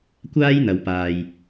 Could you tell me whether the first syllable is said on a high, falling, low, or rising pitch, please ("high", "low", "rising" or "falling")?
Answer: high